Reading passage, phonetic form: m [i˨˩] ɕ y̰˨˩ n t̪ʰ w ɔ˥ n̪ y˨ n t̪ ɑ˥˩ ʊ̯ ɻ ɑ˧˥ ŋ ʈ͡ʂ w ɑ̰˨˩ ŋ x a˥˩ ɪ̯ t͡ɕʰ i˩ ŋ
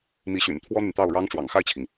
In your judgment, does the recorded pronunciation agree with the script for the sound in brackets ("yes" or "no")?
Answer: no